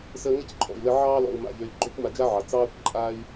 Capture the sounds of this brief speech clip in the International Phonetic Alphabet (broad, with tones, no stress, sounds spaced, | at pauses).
s ə˧ ŋ ə˦ c ǃʼ ɔ̰˨ i̯ l ə˧ ʕ ɑː˧ l ɔ̰˨ u̯ m a̰˨ ʎ ø˨ i̯ ɡ͡ǃ ø˦ kʷ m a˧ d͡ʒ a˦ ʕ ɑ˨ t͡s ɑː˦ kʷ ǃʼ a˦ i̯